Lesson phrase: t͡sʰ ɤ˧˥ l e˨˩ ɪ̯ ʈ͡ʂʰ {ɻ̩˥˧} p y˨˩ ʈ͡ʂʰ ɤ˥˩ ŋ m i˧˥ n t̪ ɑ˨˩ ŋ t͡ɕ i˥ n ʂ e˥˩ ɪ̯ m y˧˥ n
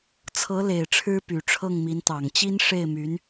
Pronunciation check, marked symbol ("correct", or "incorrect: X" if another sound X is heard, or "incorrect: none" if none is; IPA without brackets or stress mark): incorrect: ɻ̩˥